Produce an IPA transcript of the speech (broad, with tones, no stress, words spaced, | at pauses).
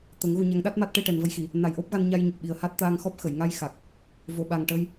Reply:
t̪ə˨˩˦ŋɣu˧ɲa˧˥ŋ ɗa˦˥t̚ma˦˥t̚ ʈe˧ʈɛ˨˩nvə˧jxi˨˩˨ | na˨˩jʔo˦˥p̚ɣa˧n ɲa˧jɲə˨˩k̚ɓi˨˩ə̯ha˦˥t̚ t̪aː˧ŋxɔ˦˥p̚xə˨˩˨j ŋa˧j xa˨˩k̚ | vo˨˩˨ɓa˨˩ŋ ʈə˧j